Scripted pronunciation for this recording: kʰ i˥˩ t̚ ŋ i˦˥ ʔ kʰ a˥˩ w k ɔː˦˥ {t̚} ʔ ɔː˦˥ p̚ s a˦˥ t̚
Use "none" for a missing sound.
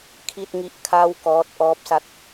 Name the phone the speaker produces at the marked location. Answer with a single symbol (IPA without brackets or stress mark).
t̚